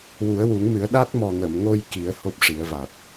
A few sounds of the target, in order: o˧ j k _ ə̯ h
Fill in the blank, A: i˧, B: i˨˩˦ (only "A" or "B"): B